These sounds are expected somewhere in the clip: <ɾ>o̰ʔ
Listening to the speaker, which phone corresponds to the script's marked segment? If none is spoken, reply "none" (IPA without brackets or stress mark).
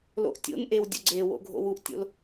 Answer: l